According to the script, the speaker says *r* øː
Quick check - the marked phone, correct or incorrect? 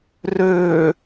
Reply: correct